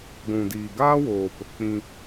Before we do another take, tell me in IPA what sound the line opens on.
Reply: ɡʷ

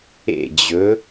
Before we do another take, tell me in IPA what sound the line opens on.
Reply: ḛ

